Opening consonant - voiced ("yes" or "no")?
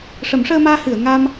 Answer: no